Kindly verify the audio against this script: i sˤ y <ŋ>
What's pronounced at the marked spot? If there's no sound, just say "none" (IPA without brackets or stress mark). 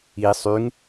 ŋ